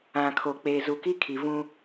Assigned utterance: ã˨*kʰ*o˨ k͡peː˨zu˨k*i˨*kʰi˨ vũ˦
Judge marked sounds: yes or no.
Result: yes, no

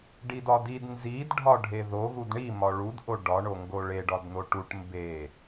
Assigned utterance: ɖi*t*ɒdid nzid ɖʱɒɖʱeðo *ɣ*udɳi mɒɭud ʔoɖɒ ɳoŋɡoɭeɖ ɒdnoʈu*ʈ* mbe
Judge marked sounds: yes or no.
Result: no, yes, yes

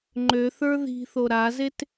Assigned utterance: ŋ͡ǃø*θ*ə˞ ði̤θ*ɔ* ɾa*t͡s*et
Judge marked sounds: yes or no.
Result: yes, no, no

